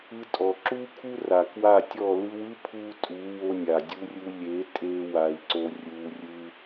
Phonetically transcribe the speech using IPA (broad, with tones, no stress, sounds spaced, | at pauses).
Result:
ɯ˧ tʼ ɔ˨ ǁ u˦ kʰ u˦ r a˨ k w a˦˨ tʲ ɔ˦˨ l ɯ˧ w ɯ˦ pʰ u˧ tʼ u˨˦ w o˧ nʲ a˨ dʲ u˧ rʲ u˧ lʲ e˨˦ tʼ e˧ w a˧ i̯ ǀ o˦ rʲ u˧ rʲ ɯ˦